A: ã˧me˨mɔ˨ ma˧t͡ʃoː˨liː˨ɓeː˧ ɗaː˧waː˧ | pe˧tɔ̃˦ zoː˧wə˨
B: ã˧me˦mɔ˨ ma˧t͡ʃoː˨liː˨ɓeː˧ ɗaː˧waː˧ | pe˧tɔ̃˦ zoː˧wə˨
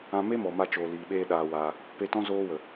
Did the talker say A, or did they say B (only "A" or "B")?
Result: B